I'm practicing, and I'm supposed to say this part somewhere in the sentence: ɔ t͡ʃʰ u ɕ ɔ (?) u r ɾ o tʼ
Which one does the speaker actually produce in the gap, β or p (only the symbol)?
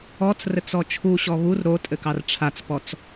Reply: β